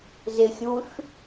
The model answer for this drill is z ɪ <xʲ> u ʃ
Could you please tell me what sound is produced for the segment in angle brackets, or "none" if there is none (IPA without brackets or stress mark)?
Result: xʲ